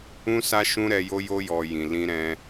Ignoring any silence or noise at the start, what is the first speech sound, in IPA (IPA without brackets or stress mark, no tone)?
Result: ũ